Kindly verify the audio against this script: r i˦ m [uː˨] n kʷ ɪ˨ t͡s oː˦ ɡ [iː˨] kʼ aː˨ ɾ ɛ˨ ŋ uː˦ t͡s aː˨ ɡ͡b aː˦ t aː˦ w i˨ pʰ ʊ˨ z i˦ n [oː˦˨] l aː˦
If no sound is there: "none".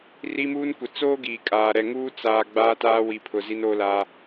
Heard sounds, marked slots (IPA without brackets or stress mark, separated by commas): uː˦, iː˨, oː˦